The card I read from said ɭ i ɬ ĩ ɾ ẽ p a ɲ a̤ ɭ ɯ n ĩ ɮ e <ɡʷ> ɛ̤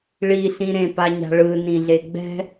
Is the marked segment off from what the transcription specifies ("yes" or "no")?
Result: yes